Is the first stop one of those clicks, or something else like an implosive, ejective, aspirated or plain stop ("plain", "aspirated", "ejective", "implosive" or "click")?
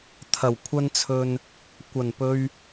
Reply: aspirated